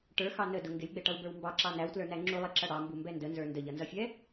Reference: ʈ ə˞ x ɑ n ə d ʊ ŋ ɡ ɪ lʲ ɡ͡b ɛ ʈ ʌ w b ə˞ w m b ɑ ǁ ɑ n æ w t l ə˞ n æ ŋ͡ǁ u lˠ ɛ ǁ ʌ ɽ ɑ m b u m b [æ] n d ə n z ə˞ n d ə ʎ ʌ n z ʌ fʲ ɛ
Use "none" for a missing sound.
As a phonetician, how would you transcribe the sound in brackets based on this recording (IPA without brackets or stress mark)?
ɛ